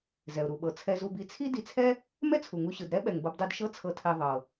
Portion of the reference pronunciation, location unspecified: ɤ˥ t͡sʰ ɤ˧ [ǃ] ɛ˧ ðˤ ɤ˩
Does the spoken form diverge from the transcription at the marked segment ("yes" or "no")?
yes